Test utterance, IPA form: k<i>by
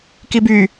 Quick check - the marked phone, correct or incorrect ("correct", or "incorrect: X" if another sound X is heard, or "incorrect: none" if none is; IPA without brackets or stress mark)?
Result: correct